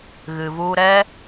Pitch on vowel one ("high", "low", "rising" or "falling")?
low